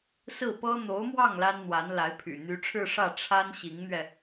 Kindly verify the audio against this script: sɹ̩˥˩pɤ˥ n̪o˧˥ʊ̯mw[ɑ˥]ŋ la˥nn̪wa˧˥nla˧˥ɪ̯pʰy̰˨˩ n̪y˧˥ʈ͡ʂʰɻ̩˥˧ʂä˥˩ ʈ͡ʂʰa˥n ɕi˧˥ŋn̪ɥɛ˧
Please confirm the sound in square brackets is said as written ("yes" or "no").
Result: no